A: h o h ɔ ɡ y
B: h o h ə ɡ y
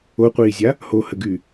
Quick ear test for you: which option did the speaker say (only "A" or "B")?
B